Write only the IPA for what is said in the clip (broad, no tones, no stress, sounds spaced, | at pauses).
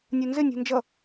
nʲ u n z ɪ nʲ ṳ n d͡ʒ ʌ